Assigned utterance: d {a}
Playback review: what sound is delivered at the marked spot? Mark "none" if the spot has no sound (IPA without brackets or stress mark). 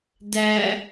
æ